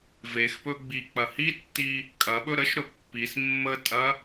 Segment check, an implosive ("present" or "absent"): present